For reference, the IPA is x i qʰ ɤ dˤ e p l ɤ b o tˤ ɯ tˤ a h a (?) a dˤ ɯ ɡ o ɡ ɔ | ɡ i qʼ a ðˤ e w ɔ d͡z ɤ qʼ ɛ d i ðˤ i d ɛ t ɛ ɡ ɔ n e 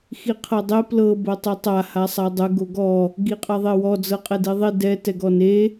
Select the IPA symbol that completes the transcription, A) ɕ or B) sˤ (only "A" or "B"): B